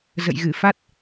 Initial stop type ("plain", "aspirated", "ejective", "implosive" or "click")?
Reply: plain